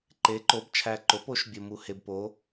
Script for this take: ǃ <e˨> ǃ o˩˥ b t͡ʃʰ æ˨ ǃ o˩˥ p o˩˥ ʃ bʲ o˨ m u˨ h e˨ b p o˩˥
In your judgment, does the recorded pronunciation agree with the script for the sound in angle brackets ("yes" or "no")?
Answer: no